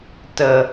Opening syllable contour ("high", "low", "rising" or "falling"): low